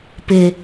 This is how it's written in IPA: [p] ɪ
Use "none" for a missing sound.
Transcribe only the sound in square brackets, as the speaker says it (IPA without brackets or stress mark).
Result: p